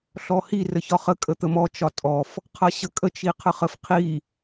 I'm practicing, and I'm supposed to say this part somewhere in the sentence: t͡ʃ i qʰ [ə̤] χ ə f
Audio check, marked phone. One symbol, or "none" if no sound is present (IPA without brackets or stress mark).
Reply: ə